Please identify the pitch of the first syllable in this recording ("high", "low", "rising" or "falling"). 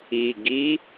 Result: low